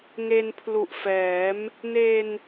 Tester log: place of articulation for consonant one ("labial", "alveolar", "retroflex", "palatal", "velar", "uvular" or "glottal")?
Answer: velar